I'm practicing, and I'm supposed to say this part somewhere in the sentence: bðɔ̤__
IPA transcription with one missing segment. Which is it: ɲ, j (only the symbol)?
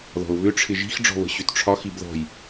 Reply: j